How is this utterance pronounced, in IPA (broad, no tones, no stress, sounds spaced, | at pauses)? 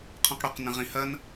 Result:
qʰ õ q ɽ o q n ə̃ ʁ ĩ h ɐ n